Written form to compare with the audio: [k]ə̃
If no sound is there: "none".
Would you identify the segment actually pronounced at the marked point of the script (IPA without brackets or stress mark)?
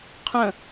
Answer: qʰ